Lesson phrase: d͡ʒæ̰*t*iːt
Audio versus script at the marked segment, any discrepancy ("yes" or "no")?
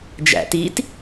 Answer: no